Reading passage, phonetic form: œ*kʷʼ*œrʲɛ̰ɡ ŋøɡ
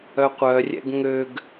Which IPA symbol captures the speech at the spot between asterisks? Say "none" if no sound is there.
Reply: qʷ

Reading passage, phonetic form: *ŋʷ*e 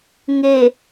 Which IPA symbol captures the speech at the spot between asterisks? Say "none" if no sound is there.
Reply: ŋ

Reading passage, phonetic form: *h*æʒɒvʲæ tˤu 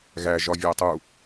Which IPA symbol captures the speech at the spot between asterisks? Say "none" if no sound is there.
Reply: ɣ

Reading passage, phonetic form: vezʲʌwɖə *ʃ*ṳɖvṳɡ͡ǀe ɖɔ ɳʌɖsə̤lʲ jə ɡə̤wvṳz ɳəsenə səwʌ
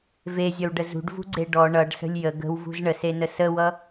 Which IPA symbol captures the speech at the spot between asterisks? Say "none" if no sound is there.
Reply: z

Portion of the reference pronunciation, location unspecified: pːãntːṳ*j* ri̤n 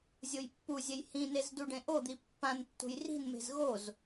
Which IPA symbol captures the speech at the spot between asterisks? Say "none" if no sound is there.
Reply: j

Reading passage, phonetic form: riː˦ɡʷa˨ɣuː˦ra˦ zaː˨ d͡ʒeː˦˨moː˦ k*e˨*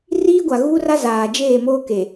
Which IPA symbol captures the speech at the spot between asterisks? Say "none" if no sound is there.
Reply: e˨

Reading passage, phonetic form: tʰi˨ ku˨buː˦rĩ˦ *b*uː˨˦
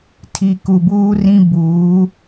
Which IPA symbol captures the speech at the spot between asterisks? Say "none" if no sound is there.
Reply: b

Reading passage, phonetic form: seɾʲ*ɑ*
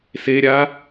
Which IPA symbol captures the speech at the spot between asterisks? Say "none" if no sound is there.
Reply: a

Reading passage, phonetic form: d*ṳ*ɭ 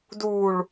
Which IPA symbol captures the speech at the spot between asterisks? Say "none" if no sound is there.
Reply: u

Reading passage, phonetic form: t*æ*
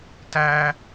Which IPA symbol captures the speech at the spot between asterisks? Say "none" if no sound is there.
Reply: æ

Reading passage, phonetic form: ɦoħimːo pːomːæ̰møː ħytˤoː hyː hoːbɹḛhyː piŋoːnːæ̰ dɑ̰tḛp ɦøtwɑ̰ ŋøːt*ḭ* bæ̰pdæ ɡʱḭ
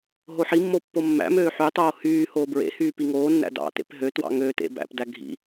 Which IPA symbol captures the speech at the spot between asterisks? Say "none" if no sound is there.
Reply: ḛ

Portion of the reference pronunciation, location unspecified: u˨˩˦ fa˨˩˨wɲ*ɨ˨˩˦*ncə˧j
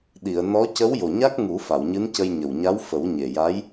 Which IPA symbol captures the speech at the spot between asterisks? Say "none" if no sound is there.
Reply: ɨ˧˥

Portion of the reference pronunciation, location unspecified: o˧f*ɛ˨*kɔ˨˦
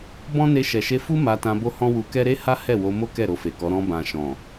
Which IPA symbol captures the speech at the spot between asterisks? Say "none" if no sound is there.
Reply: e˨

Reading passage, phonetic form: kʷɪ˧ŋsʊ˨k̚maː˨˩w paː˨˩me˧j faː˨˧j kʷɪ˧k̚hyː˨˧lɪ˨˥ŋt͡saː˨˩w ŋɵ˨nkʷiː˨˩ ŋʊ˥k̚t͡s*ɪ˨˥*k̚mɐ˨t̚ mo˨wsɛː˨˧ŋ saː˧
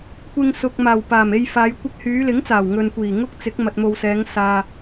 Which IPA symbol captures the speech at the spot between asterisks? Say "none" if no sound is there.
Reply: ɪ˨˥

